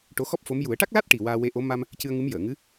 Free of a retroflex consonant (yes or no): no